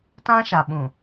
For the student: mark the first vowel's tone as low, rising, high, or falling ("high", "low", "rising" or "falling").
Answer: high